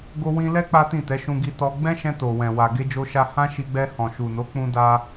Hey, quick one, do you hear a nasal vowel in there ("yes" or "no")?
yes